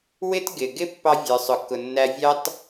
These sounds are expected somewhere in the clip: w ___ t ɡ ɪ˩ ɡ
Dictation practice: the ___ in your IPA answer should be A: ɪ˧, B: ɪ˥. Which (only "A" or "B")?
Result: B